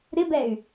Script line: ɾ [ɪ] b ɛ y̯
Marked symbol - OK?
yes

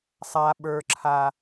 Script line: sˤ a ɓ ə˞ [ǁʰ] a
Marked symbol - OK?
yes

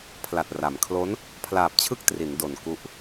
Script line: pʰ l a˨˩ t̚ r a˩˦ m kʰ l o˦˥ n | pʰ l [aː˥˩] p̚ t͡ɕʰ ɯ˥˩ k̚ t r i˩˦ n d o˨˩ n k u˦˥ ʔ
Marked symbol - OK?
no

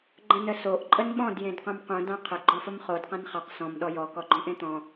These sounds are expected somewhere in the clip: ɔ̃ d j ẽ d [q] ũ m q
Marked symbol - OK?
yes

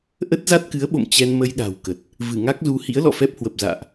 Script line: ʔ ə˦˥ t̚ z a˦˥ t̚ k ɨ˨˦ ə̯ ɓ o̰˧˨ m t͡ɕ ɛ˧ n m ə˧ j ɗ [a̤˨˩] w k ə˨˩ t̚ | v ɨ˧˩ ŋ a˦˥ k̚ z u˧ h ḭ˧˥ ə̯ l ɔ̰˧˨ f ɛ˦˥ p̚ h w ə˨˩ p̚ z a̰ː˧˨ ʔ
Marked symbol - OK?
yes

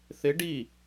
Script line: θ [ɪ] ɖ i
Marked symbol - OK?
yes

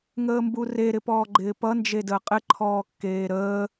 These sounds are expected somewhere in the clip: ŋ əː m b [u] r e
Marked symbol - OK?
yes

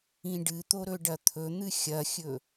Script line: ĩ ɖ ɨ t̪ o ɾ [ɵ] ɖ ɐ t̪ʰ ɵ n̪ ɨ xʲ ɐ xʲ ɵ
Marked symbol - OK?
yes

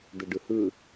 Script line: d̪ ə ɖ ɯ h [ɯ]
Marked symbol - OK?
yes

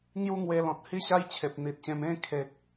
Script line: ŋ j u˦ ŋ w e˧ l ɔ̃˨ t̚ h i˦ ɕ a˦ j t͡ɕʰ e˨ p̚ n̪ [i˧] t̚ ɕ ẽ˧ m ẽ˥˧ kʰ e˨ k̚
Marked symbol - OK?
no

